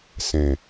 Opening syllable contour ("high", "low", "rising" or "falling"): low